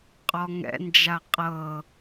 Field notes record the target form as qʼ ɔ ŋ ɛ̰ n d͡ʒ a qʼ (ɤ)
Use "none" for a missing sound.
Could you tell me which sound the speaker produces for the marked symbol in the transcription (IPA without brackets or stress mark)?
ɤ